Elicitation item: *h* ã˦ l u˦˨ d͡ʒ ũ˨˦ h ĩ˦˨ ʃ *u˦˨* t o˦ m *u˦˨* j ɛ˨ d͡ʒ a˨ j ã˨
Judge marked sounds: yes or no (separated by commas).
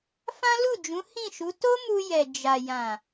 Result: no, no, no